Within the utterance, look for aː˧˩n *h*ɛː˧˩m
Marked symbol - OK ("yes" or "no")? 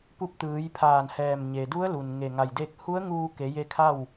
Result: yes